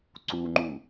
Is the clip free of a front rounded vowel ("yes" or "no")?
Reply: yes